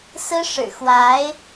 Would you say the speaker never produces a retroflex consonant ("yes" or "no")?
no